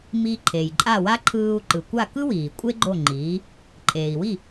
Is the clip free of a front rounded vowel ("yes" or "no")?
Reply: yes